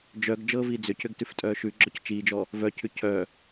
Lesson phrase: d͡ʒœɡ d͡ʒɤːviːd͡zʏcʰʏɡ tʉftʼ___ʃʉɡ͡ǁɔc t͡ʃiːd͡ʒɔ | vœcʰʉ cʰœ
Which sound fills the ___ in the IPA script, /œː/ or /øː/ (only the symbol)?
œː